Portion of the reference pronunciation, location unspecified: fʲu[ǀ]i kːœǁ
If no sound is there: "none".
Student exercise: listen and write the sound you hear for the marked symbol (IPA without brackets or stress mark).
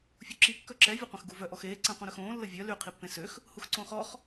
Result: ǁ